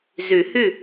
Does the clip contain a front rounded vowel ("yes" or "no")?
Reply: yes